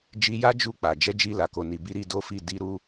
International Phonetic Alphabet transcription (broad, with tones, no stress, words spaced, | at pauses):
d͡ʒi˧ja˦ d͡ʒu˦˨k͡pa˨ d͡ʒɛ˨˦d͡ʒi˧ la˨ko˨ni˨bi˧ ɾi˦do˦fi˦˨ di˧ ɾu˦